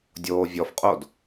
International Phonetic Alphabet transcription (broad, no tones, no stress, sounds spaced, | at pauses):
dʲ oː vʲ ɔ f qʼ o d